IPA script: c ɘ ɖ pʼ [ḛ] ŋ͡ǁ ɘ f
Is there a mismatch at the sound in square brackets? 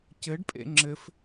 no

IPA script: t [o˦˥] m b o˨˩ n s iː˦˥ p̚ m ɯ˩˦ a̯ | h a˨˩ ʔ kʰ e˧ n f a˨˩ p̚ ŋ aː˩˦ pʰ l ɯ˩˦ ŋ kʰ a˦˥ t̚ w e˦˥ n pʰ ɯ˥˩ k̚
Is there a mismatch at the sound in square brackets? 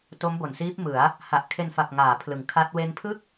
no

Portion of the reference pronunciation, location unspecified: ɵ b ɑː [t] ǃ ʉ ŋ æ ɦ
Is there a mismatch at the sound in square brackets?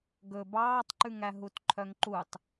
yes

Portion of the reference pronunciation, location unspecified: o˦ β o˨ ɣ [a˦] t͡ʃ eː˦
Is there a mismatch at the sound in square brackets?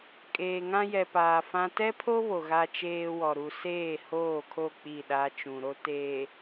no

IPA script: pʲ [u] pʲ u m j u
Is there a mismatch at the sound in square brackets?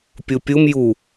no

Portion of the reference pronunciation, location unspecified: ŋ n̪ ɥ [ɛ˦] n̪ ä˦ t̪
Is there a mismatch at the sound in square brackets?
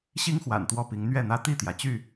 yes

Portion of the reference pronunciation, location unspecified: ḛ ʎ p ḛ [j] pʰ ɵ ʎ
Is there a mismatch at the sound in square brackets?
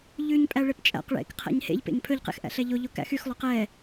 yes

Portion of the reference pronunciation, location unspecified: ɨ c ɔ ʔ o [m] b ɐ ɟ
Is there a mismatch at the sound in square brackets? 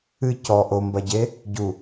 no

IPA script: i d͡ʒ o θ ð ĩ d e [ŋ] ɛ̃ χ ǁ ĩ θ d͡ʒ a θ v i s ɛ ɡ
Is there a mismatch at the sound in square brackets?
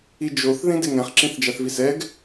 no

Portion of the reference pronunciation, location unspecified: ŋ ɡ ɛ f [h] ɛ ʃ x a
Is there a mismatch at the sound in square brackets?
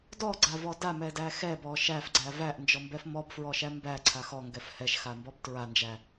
no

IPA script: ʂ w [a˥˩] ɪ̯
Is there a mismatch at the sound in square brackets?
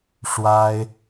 yes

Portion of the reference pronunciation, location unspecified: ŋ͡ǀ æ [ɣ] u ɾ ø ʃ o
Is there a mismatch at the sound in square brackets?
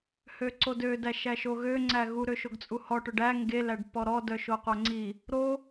no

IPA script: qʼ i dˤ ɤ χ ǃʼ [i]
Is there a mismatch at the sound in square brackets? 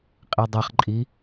no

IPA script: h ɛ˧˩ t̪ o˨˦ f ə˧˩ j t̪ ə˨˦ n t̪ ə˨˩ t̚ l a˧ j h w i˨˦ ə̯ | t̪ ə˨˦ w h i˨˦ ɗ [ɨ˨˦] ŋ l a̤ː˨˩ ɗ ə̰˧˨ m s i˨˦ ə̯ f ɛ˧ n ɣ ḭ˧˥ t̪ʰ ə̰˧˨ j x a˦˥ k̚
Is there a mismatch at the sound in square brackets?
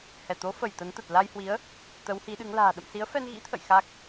no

